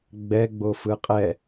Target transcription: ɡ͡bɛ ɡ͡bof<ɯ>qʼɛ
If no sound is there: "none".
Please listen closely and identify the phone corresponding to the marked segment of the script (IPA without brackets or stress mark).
ɯ